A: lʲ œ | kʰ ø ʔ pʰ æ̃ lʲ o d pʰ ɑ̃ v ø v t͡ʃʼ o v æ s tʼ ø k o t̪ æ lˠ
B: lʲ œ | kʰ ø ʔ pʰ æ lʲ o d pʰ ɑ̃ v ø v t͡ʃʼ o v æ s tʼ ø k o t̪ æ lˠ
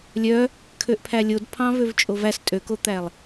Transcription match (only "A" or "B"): B